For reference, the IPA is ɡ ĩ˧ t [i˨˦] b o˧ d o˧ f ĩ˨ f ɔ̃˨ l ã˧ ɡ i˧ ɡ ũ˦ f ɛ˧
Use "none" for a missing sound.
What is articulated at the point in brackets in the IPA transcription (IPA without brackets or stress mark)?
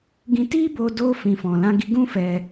i˦